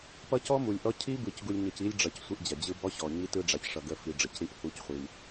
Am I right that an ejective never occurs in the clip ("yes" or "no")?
yes